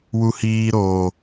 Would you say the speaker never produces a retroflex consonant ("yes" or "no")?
yes